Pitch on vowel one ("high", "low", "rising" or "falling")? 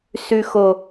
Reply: low